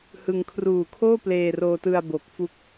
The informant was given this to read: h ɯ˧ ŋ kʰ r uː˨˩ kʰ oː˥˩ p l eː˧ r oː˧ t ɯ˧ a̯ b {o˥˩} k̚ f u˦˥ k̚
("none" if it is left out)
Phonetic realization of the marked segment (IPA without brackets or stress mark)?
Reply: o˨˩